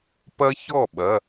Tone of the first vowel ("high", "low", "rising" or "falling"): high